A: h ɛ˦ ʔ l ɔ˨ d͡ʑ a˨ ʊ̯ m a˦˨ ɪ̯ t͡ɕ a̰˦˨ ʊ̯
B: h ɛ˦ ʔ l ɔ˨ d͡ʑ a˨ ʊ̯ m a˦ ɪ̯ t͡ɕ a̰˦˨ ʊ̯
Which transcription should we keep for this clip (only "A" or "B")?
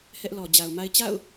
B